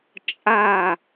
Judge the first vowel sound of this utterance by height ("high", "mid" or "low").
low